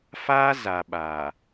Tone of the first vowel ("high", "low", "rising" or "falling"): high